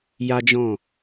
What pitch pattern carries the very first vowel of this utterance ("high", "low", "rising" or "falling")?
high